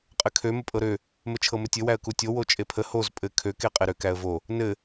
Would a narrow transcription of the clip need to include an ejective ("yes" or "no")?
yes